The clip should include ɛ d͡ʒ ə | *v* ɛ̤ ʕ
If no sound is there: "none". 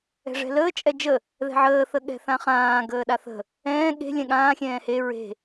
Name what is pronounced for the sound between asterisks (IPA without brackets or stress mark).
ð